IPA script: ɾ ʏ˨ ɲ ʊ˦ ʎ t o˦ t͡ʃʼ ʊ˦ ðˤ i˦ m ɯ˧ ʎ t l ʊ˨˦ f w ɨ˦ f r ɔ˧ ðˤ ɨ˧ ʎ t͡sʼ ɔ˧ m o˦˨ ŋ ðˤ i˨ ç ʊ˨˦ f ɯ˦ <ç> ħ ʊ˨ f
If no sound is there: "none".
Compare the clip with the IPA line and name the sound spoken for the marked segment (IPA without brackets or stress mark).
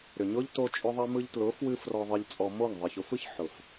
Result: ç